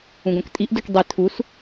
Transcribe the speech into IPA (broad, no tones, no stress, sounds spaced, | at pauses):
ũ ɡ õ k tʼ i ʔ d u k dˤ i tʰ u s